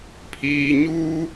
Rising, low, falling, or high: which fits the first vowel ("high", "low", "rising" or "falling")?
low